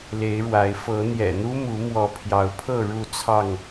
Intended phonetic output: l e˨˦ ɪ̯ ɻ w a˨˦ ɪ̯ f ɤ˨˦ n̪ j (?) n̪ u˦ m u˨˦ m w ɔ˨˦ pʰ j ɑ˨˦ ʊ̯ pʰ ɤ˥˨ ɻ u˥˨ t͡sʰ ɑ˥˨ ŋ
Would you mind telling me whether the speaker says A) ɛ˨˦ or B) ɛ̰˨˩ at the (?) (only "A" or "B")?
B